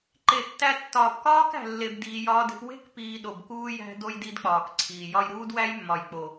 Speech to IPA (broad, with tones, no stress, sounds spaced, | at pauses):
ǃ e˨ tː æ˧ tː ɒː˨ p k ɒː˦ k æ̤˨ lː e˨ b d iː˧ j ɒː˦ d e̤˦ p w e̤˦ k p iː˧ ɗ o˨ b k uː˦ j æ̤˦ d o˧ j d i˦ d k͡p ɒː˨ k ǀʰ iː˨ j ɒ˧ j ɾ uː˦ d w æ˦ j mː ɒ˨ j k͡p o˨